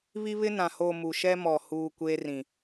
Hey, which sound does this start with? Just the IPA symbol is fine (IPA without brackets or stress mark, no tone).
β